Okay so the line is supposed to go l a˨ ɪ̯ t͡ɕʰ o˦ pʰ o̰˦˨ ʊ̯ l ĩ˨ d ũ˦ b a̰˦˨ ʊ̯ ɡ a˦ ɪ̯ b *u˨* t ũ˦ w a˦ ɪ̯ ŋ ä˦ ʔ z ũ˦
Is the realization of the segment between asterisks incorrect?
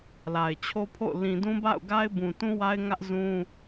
yes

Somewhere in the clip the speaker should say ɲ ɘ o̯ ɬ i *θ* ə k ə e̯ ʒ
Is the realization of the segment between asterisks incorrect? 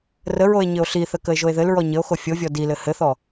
no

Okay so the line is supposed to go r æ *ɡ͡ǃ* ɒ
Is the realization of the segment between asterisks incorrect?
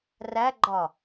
no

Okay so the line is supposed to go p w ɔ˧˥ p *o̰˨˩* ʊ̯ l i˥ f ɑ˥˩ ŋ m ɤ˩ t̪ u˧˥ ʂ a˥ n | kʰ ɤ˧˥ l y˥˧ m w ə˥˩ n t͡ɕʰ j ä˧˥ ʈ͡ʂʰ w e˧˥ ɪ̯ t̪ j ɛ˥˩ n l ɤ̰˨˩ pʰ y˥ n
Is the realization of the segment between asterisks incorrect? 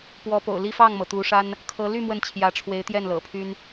no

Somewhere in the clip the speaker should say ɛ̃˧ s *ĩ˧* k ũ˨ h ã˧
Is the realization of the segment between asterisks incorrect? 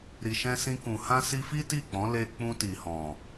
no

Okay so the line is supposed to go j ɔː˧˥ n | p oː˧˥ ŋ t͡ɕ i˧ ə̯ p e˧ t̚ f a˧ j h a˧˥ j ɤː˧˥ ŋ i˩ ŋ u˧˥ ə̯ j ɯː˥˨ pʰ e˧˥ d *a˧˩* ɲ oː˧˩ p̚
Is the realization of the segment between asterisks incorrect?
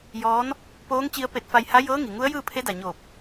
yes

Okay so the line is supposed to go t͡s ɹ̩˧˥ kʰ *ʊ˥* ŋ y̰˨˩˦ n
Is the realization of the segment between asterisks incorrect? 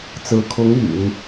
yes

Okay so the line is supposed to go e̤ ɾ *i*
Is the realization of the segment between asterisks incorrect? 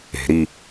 no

